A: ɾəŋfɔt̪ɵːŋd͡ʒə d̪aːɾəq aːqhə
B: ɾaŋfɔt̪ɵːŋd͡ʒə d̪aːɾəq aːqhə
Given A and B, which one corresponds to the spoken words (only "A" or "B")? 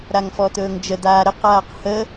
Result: B